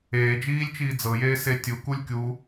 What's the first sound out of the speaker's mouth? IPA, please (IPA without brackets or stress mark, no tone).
eː